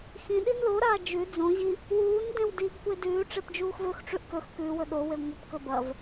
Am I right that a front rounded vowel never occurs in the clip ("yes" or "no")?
yes